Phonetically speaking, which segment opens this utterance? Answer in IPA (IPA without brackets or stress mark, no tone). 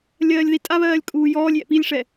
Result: lʲ